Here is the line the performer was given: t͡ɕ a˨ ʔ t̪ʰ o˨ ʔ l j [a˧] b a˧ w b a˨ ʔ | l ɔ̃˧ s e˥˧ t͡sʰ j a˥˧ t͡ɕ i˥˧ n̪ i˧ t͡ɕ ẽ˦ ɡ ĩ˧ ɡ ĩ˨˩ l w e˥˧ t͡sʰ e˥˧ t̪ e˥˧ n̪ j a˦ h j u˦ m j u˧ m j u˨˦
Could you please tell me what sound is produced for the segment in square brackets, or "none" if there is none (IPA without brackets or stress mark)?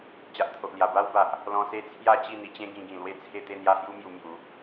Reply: a˨˩